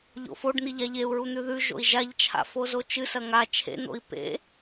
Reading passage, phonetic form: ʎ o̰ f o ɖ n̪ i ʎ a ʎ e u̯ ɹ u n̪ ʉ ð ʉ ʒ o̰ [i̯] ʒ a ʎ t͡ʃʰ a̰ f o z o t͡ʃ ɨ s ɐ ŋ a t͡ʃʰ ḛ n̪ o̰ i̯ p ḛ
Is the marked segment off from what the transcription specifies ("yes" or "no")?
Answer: no